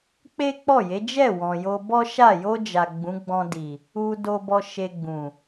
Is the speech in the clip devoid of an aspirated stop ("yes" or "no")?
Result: yes